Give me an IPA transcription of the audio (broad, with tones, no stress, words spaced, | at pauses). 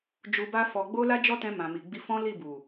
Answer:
d͡ʒu˧ba˦fɔ˧ ɡ͡bo˦la˦d͡ʒɔ˦tɛ̃˧ mã˨mi˨ɡ͡bi˧fɔ̃˦ li˦˨ bu˨